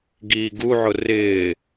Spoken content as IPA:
ɡiːɡuʕʊ rɪː

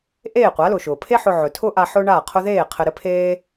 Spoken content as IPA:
ʔeː˥˩qʷa˩˥lʊ˩ʃʊː˩ pʰe˥ħʊ˧ ʕɵ˩tʰʊː˥ ʔa˧ ħʊː˥ɳaː˥˩qʰʊ˥ ðeː˥˩ qʰɘ˧ɾɘ˥pʰeː˥

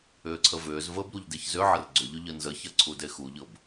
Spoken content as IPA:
ʏːǀʰəvʏːzvəːb ɾuʎdeçzʏʕər ɡ͡ǀʏʎʏ ʎənzəçɐ ǀʰudexuʎɤb

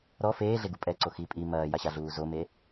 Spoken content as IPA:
ɾɔ feːɮeɡu pʼɛǀo xi pʼi mɐːjaɕaɮuː zome

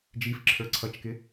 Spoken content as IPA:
d͡ʒifǁʰə˞ ǀʰʌt͡ʃkɪ

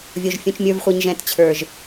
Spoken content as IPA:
vʲo˨ʒ fʲũ˨t͡ʃmʲə˞˨vχʷe˨ɲ ʒɛ̃˨tt͡ɕʰə˞˨ʒ

